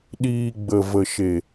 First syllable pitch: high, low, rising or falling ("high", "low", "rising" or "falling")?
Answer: low